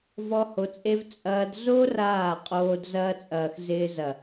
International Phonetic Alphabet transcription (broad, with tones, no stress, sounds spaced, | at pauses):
v ɔ˦ h o˧ t͡sʼ e˦ v t͡sʼ ɐː˧ d z o˦ r aː˦˨ qʼ oː˧ d z ɐː˦ t͡sʼ ɐː˨ x z ɪː˦ z ɐ˨